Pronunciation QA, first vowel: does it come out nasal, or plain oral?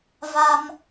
oral